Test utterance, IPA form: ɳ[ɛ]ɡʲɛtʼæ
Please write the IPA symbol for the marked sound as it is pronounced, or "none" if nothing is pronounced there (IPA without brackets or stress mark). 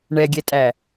ɛ